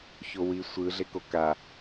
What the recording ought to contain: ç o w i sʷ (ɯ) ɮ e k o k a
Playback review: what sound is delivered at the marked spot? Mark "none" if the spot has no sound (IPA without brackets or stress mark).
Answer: ɯ